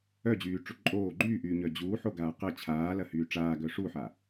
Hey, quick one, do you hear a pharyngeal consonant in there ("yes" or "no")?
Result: yes